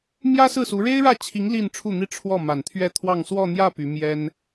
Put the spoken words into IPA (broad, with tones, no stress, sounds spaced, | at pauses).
m j ä˥ s ɹ̩˥˩ s u˧˥ ɻ e˥ ɪ̯ ɻ ä˥˩ t͡ɕʰ i˧˥ ŋ l i˥˧ n ʈ͡ʂʰ u˥˩ n̪ i˥ ʈ͡ʂʰ w ɔ˥˩ m a˨˩ n t̪ʰ ɥ ɛ˥˧ t̪ʰ w ɑ˥˧ ŋ s w ɔ˥˧ n̪ j ä˥˩ p y˧˥ m j ɛ˥ n